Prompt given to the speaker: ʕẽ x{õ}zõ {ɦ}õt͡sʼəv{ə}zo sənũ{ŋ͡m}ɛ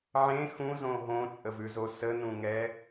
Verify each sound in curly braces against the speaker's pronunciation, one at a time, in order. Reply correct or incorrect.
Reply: incorrect: ũ, correct, incorrect: ʉ, incorrect: ŋ

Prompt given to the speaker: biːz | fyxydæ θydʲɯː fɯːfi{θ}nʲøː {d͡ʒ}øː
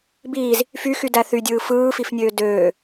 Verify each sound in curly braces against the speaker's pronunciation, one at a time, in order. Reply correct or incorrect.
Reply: incorrect: f, incorrect: d

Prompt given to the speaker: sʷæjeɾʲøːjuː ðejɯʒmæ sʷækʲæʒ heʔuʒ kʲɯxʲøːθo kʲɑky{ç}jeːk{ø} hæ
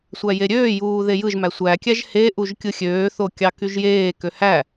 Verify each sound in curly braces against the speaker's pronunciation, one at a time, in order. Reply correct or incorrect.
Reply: incorrect: ʒ, correct

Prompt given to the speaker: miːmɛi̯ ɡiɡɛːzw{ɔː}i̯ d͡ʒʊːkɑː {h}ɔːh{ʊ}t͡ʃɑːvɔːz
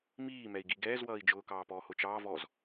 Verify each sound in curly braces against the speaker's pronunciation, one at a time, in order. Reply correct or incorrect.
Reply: incorrect: ʌː, incorrect: p, correct

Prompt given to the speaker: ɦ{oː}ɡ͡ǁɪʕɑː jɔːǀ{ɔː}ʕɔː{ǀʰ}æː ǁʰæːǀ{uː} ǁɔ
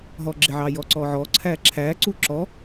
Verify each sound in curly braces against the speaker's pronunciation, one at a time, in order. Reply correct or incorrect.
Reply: incorrect: ɔː, correct, correct, correct

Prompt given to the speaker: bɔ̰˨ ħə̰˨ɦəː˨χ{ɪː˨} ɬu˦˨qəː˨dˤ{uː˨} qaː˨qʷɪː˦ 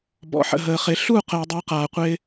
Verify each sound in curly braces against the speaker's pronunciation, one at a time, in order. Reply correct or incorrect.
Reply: incorrect: ɪ˨, correct

